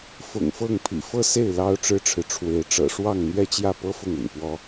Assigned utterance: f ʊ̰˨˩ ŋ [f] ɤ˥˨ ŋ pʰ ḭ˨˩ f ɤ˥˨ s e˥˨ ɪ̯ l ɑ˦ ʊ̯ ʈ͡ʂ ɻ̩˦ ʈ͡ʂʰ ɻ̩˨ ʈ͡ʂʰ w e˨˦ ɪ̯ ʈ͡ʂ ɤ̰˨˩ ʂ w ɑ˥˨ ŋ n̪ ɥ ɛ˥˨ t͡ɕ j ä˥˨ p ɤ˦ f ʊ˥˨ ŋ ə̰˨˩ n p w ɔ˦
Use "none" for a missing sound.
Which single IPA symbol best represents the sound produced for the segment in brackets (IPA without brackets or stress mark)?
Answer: f